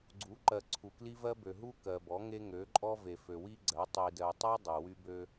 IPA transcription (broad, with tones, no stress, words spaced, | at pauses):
ɡ͡ǀu˨˦ ǃɜ˨ ǀʰu˨kli˦vɜ˦bø˨ ɦu˦kɜ˨bɔ˨˦ŋe˦ ŋø˨˦ǃʼɔ˦ ve˨fø˨wi˦ɡ͡ǀɜ˨˦ tˤi˨dɜ˨tˤe˦ dˤø˨wy˦bø˦